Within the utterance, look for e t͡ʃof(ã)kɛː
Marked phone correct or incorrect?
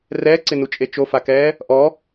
incorrect